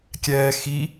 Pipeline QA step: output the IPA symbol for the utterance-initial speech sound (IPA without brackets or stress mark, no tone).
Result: kʲ